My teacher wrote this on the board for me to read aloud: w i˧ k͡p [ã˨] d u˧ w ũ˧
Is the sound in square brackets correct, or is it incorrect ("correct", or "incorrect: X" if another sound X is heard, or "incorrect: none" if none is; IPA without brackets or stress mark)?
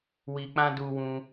incorrect: ã˦